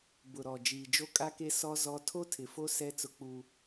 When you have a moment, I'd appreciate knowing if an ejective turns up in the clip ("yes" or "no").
yes